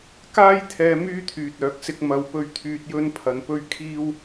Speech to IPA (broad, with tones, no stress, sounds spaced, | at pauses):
k aː˥ j t̪ʰ ɛː˧ m yː˥ t̪ʰ yː˨ t̚ œː˨˥ k̚ s ɪ˧ k̚ m ɐ˨ w p ɵ˨˧ ɥ t̪ʰ yː˨ t̚ j ɵ˥ n pʰ ɐ˧ n p ɵ˥ ɥ kʰ iː˥ w